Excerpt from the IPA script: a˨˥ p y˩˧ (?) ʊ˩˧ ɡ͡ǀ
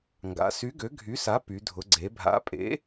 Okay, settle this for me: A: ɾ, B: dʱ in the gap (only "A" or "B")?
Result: B